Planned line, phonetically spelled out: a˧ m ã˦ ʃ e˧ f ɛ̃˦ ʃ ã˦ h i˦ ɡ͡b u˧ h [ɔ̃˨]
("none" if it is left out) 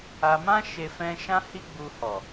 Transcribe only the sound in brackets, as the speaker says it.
ɔ˨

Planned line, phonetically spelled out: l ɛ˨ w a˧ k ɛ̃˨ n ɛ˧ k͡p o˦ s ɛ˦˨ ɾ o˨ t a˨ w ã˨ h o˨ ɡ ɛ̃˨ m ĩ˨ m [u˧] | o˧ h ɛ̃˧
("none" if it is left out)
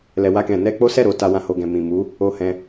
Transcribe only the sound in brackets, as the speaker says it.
u˨˦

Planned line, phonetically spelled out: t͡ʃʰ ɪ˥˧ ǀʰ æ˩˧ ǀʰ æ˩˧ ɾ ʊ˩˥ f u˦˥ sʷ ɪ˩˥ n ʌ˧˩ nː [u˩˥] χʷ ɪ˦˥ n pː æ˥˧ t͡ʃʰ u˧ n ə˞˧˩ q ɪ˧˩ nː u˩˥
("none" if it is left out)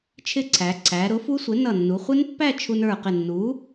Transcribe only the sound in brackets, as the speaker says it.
u˩˧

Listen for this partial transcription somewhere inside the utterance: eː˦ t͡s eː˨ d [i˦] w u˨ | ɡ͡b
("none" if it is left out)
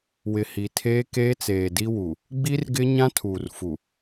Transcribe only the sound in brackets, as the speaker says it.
i˦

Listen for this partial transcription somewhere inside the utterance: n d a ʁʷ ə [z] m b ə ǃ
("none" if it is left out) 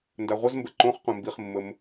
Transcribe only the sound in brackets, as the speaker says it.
z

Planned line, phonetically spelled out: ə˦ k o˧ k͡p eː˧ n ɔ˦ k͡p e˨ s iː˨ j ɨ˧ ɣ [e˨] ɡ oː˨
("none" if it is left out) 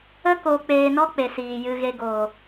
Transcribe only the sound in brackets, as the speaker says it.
e˧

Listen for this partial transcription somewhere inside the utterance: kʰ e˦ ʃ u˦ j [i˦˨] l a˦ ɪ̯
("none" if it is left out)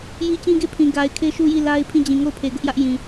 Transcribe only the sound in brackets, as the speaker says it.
i˦˨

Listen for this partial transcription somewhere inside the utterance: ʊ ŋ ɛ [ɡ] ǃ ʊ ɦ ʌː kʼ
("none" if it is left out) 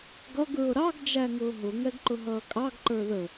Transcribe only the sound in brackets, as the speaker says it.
ɡ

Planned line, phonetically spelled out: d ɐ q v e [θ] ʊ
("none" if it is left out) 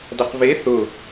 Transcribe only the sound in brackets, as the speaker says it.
θ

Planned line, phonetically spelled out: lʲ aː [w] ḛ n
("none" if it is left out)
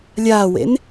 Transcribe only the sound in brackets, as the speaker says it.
w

